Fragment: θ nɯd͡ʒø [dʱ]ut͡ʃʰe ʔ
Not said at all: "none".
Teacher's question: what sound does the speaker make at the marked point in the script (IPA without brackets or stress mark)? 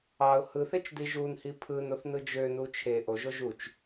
n